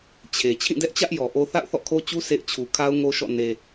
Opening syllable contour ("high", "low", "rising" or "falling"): low